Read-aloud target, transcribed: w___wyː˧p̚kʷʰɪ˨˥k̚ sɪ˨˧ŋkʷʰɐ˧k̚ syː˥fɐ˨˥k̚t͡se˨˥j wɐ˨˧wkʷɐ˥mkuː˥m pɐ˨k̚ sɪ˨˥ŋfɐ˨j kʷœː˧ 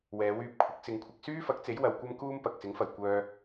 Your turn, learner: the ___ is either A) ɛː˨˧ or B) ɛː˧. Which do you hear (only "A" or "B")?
A